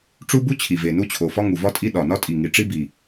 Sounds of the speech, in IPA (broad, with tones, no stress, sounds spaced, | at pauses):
ʈ͡ʂ u˦ b u˦ t͡ɕʰ i˨˩ v e˨˩ n u˦ t͡ɕʰ o˨˩ f ɒ˦ ŋ u˨˩ v ɒ˦ tʼ i˦ ɗ ɒ˨˩ n ɒ˦ tʼ i˨˩ ŋ i˨˩ ʈ͡ʂ i˦ b i˨˩